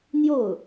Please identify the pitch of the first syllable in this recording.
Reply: falling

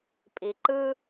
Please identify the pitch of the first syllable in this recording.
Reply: low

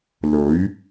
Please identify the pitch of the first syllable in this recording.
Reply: rising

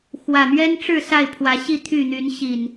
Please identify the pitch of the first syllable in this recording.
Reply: low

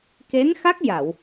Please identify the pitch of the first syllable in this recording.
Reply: rising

